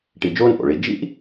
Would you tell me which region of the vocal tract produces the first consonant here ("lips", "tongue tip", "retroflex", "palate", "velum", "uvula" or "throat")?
retroflex